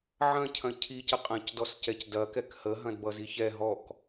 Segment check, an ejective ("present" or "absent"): present